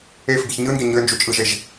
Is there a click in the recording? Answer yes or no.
no